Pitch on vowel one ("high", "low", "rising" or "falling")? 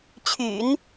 low